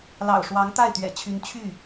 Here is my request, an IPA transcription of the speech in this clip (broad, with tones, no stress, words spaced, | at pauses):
lɑ̰˨˩ʊ̯ʂwɑ˧˥ŋt̪a˥˩ɪ̯ t̪ɥɛ̰˨˩t͡ɕʰy˧˥n t͡ɕʰy˥˩